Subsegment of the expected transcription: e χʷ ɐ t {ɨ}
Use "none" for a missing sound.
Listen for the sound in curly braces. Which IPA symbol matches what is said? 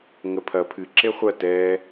ɛ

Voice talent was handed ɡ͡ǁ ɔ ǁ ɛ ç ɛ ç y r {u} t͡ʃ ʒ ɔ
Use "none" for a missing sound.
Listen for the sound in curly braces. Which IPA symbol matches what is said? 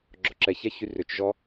ʏ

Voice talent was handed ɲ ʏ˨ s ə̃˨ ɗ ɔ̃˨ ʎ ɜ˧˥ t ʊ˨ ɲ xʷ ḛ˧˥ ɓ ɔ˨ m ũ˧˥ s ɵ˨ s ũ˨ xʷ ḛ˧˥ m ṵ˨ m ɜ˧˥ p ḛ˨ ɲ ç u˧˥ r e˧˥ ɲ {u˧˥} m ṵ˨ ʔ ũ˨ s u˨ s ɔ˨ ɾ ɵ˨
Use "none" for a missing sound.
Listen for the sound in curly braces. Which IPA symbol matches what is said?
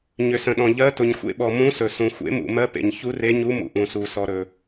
u˧˥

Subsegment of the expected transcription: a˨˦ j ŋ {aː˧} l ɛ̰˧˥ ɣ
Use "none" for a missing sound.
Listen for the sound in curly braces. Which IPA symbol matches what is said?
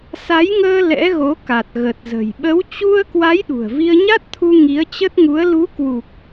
əː˧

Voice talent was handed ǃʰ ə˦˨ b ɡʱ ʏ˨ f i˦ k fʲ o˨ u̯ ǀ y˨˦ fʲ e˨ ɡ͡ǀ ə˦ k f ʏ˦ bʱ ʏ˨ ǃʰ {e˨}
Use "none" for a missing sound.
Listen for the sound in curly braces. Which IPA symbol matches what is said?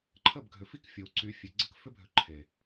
e˨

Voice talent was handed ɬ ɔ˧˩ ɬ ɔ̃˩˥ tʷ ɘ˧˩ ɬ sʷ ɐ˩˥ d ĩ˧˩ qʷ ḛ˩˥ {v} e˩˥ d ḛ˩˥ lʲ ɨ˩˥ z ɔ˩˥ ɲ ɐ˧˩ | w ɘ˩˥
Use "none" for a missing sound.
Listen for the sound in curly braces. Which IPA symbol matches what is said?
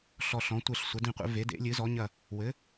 v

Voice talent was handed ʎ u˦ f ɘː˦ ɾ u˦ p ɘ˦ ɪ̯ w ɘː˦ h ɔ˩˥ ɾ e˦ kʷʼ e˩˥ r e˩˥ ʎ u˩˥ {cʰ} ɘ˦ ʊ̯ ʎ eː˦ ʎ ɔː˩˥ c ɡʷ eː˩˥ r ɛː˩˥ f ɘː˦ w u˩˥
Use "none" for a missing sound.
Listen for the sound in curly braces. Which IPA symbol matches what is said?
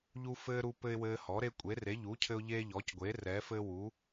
cʰ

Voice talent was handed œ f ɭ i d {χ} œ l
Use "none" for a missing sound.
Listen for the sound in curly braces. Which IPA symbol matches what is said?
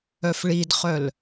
χ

